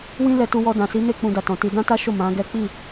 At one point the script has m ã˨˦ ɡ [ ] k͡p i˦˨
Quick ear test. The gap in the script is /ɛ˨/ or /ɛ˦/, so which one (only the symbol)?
ɛ˦